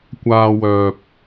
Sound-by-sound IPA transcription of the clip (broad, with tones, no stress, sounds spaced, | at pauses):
kʷ aː˧ w œː˨ p̚